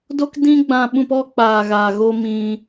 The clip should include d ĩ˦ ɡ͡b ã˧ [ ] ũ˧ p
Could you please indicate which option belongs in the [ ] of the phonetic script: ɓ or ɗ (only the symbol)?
ɓ